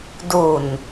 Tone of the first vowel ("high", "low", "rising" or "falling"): low